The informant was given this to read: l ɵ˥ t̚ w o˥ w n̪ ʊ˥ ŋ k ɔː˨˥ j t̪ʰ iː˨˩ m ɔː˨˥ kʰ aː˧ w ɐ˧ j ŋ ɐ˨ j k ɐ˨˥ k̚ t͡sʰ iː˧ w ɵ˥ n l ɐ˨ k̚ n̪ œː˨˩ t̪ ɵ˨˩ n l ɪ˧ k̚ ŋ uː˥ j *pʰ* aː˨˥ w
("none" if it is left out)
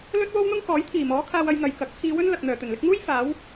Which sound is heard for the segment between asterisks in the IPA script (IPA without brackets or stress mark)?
f